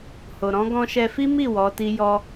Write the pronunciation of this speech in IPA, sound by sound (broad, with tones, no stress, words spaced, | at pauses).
ho˨ ɾɔ̃˨˦ ɡɔ̃˧ʃɛ˧fi˦ mi˦˨ wɔ˨˦ti˦jɔ˦